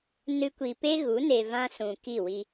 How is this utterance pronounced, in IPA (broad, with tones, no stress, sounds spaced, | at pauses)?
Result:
n ɨ˦ kʷ i˧ p e˦ ɣ u˨˦ n e˧ v ã˦ s ũ˨ k i˦˨ w i˧